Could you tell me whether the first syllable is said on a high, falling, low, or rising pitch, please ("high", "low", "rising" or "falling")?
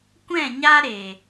falling